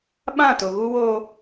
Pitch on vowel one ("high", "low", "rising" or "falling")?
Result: falling